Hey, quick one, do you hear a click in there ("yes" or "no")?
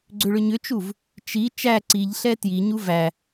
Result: yes